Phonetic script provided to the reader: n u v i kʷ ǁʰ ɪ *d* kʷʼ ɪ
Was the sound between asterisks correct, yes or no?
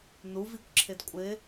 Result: yes